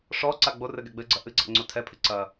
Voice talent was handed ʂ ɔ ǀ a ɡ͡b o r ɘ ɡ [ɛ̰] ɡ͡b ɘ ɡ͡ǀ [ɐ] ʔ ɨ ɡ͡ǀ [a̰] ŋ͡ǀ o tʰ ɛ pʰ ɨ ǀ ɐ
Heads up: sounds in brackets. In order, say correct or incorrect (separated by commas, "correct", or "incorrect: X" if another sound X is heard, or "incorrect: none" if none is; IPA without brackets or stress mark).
incorrect: ɛ, correct, correct